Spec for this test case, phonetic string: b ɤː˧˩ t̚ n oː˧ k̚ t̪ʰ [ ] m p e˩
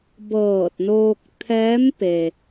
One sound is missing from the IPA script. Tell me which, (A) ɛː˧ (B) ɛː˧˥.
B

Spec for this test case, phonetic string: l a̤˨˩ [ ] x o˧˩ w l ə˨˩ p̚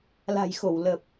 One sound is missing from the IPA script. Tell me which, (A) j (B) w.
A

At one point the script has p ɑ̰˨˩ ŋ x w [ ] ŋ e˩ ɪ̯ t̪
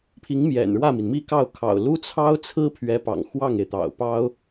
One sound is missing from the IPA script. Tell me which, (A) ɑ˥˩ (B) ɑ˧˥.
A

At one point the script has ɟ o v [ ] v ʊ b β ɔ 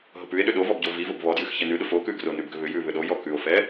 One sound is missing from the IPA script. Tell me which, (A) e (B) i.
B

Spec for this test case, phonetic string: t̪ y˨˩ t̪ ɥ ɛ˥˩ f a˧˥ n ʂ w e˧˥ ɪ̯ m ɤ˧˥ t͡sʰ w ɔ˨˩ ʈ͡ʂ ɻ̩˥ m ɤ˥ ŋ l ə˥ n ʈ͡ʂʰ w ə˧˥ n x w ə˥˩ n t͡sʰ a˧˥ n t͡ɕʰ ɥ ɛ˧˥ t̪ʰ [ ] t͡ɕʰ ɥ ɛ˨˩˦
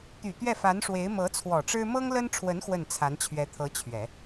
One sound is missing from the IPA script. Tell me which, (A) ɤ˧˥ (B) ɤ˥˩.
A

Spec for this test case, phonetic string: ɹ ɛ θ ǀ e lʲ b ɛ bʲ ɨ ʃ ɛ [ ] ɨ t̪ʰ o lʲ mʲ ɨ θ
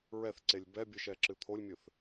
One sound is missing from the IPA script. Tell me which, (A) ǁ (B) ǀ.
A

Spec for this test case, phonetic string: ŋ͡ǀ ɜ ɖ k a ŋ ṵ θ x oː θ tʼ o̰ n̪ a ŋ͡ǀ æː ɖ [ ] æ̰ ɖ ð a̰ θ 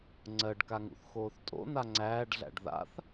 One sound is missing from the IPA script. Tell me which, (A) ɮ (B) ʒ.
A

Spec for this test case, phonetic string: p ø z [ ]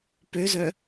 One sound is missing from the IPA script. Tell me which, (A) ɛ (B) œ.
B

